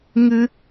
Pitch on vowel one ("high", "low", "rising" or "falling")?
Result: high